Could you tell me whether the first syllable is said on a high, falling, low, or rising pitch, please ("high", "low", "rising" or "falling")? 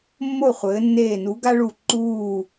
falling